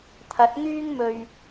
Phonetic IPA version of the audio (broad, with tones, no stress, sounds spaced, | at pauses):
t̪ʰ ɐ˨˥ t̚ ŋ yː˥ ŋ m ɵ˧ ɥ